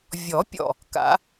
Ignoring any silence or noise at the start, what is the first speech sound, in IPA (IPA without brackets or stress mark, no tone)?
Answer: vʲ